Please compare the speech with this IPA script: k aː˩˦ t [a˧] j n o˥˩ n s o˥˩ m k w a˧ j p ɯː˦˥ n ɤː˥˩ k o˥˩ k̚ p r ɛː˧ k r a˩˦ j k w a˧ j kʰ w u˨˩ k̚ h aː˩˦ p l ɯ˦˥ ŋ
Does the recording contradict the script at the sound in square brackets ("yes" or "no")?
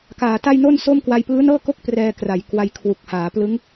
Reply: yes